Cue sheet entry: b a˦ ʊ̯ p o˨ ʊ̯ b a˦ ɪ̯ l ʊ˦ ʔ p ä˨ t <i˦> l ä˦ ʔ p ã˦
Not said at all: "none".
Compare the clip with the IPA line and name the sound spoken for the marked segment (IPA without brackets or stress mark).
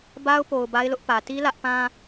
i˦